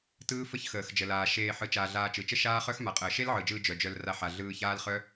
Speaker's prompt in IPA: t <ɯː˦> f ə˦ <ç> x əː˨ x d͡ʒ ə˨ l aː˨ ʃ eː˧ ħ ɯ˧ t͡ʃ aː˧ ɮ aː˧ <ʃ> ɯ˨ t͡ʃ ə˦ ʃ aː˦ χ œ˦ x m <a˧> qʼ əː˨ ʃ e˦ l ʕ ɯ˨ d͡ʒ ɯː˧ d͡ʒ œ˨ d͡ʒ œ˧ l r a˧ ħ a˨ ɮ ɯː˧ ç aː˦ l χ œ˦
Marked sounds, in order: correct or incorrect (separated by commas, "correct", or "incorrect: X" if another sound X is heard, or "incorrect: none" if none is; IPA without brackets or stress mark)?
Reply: correct, correct, incorrect: t͡ʃ, incorrect: a˨